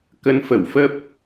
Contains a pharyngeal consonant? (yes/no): no